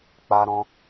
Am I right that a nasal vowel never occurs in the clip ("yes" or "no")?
no